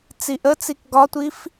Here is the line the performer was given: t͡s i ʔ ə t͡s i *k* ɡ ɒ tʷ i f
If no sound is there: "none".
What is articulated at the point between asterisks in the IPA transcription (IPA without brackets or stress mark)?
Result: k